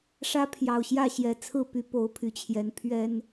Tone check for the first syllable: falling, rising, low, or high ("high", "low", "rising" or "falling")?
high